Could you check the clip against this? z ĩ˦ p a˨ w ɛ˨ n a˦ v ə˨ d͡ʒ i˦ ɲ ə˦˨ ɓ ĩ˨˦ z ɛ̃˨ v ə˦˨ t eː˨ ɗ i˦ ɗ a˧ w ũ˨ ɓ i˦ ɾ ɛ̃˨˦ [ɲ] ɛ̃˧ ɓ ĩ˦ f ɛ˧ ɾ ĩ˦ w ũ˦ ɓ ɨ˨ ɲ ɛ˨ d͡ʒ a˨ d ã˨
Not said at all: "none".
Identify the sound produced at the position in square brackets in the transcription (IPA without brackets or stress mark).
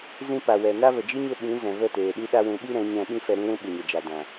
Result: ɲ